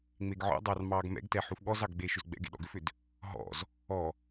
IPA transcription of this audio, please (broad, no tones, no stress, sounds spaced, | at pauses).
ŋ͡m e ɡ ʕ ɔ̰ dˤ ɑ r m ɑː ɡ m ɛ̰ ɡ t ɛ ħ u f ɠ ɔ z ɑ ɡ ɡ͡b eː ʃ ʏ z ɡ͡b ɛ̰ ɡ ḛ ɗ ɔ̰ ɡ ʏ f ʏ d | ɦ ɔ̰ z | ɔ